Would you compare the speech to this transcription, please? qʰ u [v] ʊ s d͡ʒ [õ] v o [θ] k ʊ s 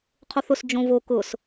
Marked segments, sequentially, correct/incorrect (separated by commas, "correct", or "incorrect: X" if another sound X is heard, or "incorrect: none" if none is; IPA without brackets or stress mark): incorrect: θ, correct, incorrect: none